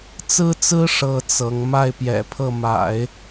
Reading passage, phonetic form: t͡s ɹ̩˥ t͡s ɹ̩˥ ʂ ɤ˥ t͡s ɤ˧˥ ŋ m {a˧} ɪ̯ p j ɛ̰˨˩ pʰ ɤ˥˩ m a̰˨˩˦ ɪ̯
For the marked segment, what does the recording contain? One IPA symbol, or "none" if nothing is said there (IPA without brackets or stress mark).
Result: a˥˩